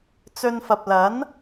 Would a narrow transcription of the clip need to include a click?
no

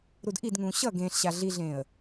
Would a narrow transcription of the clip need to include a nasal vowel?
yes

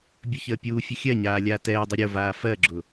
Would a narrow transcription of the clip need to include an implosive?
no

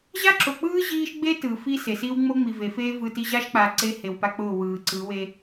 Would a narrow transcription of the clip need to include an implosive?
no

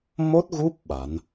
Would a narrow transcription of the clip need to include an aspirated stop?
no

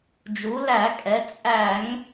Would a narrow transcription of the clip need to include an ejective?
yes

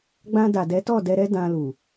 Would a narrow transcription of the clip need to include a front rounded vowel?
no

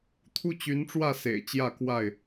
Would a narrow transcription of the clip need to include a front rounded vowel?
yes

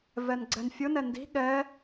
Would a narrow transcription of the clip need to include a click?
yes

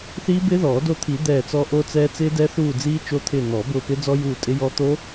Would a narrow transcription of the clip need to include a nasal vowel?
no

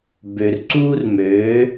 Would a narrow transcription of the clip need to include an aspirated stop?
no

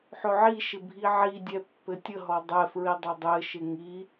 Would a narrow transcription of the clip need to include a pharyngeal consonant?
yes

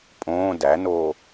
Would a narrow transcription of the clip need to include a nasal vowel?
yes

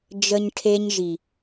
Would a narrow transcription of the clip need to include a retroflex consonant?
yes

